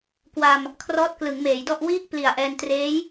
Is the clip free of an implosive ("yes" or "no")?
yes